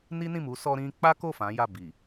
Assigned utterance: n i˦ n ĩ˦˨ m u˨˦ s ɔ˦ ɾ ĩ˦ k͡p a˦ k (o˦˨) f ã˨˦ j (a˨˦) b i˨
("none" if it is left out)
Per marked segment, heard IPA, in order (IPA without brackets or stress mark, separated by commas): o˦˨, a˦˨